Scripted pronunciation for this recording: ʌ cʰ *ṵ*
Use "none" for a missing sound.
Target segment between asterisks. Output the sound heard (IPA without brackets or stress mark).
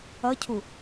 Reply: u